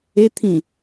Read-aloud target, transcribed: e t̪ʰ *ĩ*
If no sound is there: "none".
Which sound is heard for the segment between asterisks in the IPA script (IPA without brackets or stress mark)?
ĩ